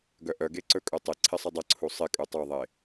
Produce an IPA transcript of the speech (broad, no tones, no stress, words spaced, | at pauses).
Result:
ɡœʔœɡe ǀɵkʼɵtˤɪǀʰɪ sˤədˤəǀʰu sˤɪ kʼutˤoðˤe